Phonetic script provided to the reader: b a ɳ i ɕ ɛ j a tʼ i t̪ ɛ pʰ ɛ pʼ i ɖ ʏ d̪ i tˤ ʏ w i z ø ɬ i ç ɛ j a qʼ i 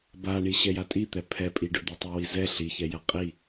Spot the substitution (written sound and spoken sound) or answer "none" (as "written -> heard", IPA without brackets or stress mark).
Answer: ø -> ɛ